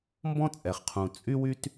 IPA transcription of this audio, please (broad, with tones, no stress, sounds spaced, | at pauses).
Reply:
m b ɔ̃˦ t͡sʼ ɛ˨ χ qʰ ũ˨ t͡sʼ y˦ w y˦ t